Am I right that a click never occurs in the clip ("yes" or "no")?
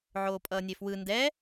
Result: yes